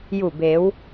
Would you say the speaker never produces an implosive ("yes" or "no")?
yes